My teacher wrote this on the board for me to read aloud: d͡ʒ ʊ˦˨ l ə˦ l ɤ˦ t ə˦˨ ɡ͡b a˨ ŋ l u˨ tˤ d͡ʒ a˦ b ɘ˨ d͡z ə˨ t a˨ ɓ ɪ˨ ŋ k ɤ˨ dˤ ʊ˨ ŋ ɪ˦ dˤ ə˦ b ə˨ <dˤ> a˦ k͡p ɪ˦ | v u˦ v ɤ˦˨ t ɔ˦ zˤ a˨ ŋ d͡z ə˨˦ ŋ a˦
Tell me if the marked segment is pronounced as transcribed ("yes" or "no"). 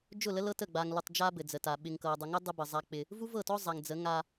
no